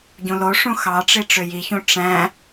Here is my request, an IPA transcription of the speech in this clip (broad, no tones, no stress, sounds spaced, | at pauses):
ɟ ũ l o ʂ ũ x ɑ ʈ͡ʂ i ʈ͡ʂ ø j i ç ũ ʈ͡ʂ æ̃